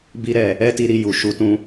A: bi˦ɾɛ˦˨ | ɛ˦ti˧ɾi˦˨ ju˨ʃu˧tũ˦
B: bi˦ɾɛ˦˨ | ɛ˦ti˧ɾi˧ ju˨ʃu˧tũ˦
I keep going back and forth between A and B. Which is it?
B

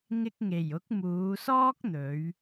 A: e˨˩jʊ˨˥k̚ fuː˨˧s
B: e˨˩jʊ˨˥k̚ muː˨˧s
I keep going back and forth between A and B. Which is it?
B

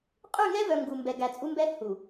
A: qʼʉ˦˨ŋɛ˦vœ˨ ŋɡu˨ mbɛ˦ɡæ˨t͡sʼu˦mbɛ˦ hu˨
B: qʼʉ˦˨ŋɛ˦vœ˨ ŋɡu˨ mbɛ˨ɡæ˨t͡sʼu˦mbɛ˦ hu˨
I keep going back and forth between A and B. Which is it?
B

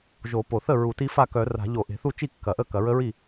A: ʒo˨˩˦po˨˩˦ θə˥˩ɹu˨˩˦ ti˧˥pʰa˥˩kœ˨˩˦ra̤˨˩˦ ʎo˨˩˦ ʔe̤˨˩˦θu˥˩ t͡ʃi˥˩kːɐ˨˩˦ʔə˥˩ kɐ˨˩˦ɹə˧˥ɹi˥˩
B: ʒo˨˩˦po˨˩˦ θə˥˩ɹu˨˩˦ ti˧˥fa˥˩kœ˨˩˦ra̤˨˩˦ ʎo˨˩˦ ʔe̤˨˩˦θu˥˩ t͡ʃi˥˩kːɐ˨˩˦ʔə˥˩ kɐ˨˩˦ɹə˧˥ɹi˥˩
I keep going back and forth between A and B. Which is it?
B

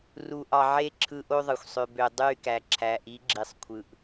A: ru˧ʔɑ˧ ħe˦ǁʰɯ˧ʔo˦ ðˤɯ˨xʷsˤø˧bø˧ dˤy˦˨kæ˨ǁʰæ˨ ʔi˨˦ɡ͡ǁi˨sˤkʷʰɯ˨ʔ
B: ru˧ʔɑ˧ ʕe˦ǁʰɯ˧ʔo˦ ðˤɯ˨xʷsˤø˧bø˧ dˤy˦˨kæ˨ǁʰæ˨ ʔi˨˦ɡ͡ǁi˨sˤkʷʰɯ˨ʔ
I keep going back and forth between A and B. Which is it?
B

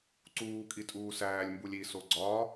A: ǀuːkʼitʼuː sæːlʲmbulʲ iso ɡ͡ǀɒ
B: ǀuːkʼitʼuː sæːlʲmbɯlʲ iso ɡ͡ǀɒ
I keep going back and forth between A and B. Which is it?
A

